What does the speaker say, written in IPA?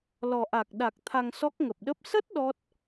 l ɔ˨˩ ʔ a˨˩ k̚ ɗ a˨˩ k̚ t̪ʰ a˧ ŋ s ɔ˦˥ k̚ ŋ ə˨˩ p̚ ɗ ə˦˥ p̚ s ə˦˥ t̚ ɗ ɔ˦˥ t̚

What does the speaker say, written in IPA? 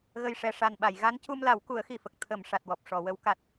ɣ ə˨˩ j ʂ ɛ˨˩ ʂ a˨˩ n ɓ a˨˩˨ j ɣ a˧˥ n c u˧ m l a˨˩˦ w k u˨˩˦ ə̯ x i˨˩ f ə˨˩ k̚ t̪ʰ ə˨˩˨ m ʂ a˨˩ t̚ w ɔ˨˩ p̚ ʂ ɔ˨˩˨ w ə˧˥ w k a˦˥ t̚

